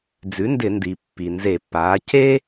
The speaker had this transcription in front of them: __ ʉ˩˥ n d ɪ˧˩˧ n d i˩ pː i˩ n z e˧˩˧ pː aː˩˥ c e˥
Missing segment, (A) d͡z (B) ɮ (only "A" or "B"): A